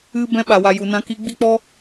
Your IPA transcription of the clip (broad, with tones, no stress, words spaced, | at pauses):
ɨ˦ bɛ̃˧ɓa˨wa˨ ju˨nã˧ ki˧ɡ͡bi˦k͡pɔ˦